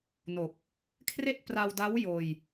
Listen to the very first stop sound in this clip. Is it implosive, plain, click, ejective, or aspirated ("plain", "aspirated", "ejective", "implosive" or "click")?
plain